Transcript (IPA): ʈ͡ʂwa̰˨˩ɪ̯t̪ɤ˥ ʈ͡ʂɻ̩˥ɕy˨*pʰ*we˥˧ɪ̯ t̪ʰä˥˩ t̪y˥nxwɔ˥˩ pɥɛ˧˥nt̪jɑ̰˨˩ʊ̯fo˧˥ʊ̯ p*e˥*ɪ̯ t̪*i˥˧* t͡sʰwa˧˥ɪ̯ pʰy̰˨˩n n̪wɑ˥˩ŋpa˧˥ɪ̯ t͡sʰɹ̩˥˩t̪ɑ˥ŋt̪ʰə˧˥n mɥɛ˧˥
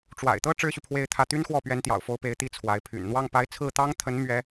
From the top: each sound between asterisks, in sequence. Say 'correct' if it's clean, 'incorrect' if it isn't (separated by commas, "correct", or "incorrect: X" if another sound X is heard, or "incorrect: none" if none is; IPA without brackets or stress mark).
correct, incorrect: e˧˥, incorrect: i˧˥